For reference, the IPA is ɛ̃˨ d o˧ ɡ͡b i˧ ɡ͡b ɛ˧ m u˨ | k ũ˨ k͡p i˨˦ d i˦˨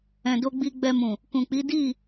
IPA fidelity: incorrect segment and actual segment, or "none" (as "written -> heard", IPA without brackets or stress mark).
u˨ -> ũ˨